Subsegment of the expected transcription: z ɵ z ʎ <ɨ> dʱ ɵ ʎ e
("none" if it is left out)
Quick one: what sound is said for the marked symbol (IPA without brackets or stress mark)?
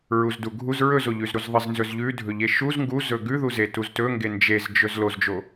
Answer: ʉ